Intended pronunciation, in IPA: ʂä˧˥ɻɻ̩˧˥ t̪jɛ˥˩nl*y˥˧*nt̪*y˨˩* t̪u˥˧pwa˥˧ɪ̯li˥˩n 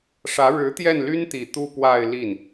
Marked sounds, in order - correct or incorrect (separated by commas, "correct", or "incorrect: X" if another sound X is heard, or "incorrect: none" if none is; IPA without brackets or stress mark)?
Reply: incorrect: y˥, incorrect: i˨˩